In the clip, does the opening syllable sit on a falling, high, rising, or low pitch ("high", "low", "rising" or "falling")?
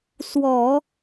low